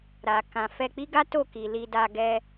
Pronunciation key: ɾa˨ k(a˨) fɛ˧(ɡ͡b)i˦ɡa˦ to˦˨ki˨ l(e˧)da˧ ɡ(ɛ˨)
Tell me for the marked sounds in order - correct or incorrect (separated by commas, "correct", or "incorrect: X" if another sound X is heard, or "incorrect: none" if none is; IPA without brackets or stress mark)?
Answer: incorrect: ã˨, incorrect: k͡p, incorrect: i˧, incorrect: ɛ˧